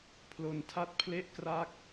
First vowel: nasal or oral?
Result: oral